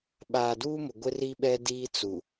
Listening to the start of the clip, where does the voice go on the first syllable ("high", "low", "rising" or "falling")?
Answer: low